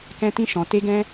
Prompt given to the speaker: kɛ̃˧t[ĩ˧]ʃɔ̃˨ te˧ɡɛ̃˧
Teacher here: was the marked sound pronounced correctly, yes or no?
yes